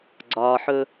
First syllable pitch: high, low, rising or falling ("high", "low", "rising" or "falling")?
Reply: low